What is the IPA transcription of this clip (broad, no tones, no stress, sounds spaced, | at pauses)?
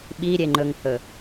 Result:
ɓ i ɾʲ e ŋ͡ǃ ɵ ŋ h ɵ